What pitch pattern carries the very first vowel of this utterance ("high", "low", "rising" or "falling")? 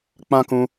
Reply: high